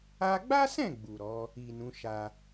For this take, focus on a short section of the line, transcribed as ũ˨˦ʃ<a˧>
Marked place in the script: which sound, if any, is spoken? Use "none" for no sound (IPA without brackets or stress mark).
a˧